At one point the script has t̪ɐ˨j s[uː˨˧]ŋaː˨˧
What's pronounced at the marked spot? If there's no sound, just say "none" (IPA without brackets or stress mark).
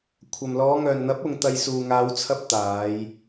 uː˨